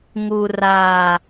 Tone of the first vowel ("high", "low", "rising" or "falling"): low